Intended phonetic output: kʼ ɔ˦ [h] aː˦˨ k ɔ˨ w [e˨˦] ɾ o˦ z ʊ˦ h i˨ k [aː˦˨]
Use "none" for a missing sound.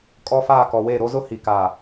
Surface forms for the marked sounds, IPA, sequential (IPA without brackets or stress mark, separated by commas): f, e˦˨, aː˨